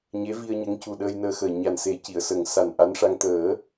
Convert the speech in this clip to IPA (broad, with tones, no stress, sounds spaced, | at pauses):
ɲ e˧˥ v i˧ ə̯ ɲ ə˧˥ ŋ c u˨˩ ɗ əː˧ j n əː˧ x əː˨˩ ɲ a˨˩ n s e˨˩˦ c i˨˩˨ ə̯ s ə˨˩ ŋ s a˨˩ n ʔ a˧˥ n ʂ a˧ ŋ t̪ əː˨˩˦